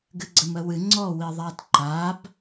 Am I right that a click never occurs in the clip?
no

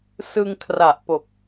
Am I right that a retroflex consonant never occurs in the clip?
yes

